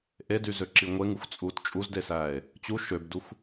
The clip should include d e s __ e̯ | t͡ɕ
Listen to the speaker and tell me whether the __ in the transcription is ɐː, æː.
æː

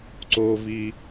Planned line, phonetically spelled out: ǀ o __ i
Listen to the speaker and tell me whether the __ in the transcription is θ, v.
v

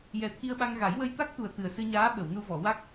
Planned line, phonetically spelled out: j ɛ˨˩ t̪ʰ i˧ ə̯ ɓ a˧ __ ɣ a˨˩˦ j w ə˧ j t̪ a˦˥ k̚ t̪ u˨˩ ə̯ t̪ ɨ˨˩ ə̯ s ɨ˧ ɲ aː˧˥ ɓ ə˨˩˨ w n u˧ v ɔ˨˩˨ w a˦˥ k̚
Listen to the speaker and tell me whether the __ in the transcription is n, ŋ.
ŋ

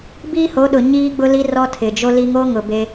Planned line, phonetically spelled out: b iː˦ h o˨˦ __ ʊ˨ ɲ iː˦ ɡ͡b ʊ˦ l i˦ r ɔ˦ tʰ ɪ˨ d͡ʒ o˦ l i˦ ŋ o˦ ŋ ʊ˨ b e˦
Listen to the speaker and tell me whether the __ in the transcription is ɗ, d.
ɗ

